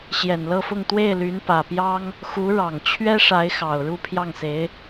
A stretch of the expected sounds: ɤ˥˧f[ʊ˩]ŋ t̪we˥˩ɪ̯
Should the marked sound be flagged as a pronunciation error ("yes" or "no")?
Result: yes